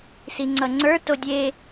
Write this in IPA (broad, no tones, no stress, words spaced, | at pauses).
siŋ͡ǀʌŋ͡ǀə˞ todʲe